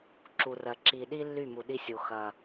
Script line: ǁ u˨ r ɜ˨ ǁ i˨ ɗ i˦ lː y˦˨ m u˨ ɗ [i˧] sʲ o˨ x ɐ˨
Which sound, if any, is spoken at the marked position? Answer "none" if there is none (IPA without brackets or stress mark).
i˧